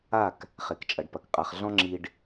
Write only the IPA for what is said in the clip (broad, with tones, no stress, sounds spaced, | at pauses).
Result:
a˦˨ k | χ e˨ k t͡ʃʼ ɐ˨ ɖ p ɐ˨ k qʼ a˨ χ ɮ ɔ̃˦ ŋ͡ǁ i˨ ɖ